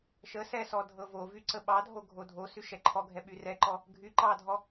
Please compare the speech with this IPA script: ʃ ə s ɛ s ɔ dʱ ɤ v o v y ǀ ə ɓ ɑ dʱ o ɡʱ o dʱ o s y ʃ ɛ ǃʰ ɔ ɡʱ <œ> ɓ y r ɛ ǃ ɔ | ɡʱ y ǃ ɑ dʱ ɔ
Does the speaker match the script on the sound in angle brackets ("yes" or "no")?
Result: no